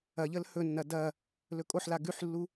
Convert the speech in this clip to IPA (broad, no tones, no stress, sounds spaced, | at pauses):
ɐ ʎ ə l h ɵ nː ɐ d ɐ | l ɵ kʼ o ħ l a ɡ ʉ ħ lː u